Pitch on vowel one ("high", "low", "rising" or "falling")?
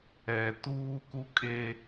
low